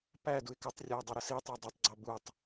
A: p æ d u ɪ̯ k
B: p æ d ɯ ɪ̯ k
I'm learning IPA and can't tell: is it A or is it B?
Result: A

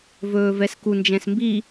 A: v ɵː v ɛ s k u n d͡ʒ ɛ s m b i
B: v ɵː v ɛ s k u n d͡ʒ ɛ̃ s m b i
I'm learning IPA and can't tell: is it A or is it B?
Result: B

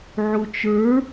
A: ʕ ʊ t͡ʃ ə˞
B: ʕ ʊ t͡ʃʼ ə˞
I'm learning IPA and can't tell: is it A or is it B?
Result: A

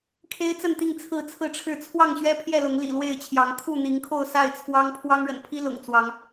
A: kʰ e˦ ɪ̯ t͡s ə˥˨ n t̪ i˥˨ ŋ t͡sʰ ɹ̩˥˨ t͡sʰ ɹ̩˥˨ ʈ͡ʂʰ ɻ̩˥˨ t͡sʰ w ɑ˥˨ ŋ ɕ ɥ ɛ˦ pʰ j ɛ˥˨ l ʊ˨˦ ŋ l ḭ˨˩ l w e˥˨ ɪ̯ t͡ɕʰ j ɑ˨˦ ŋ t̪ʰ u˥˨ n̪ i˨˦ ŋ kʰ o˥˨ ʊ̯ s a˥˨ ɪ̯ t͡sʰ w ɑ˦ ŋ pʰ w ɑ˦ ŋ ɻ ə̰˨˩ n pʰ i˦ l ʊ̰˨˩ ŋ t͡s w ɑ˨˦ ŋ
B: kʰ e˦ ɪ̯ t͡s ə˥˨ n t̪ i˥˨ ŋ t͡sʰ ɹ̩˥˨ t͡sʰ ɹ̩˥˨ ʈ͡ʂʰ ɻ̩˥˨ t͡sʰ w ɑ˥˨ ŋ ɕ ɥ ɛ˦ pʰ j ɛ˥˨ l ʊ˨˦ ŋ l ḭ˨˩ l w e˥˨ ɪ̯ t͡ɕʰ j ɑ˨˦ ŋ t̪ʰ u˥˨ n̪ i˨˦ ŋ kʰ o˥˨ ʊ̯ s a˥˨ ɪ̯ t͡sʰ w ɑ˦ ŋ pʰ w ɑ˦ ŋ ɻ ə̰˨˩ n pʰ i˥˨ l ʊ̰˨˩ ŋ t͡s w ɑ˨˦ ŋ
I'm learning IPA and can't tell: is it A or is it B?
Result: A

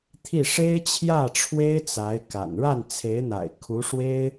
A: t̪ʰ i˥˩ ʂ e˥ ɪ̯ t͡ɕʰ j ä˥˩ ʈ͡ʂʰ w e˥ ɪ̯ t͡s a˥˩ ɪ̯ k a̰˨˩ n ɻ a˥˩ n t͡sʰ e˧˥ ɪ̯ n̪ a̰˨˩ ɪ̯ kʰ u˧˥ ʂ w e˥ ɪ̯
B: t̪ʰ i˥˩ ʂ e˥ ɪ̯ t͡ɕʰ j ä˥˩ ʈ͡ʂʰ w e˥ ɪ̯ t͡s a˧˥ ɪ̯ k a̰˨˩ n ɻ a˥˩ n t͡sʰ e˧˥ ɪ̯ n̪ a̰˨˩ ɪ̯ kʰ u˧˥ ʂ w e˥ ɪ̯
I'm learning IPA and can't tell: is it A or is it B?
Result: B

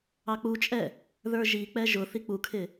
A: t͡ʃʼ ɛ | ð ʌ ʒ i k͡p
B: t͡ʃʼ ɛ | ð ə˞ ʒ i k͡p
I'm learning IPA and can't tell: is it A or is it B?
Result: B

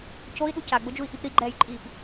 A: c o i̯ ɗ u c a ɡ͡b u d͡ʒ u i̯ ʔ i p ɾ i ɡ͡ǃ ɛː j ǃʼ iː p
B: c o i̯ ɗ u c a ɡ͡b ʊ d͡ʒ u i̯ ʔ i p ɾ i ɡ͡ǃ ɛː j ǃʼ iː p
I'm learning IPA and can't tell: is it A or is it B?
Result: B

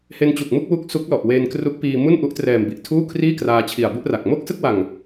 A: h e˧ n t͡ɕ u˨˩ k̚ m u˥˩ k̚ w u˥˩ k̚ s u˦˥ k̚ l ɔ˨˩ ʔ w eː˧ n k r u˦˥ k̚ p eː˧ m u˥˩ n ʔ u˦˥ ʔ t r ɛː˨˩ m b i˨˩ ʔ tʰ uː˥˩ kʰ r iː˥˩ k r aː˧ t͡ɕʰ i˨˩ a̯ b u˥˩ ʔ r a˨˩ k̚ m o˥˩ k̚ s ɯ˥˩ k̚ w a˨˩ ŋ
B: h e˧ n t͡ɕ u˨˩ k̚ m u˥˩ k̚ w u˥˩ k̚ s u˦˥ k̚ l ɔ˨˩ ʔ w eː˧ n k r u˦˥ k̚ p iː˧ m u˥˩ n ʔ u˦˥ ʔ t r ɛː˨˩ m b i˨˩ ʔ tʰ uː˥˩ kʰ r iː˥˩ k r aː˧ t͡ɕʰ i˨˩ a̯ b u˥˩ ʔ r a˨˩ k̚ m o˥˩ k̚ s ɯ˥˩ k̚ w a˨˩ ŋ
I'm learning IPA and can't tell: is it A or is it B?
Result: B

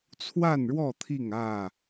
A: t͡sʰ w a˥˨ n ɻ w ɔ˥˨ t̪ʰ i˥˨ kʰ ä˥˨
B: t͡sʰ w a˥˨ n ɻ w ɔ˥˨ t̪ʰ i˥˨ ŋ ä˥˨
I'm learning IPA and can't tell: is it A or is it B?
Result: B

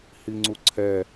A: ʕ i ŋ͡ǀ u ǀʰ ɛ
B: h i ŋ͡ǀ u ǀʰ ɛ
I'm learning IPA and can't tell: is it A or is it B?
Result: B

